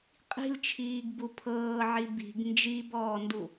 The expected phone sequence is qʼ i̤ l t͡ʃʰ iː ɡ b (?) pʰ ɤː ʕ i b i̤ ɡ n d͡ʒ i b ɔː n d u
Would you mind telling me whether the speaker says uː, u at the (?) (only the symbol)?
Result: u